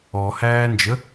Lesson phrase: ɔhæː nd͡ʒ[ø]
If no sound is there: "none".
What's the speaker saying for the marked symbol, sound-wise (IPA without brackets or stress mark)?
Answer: ə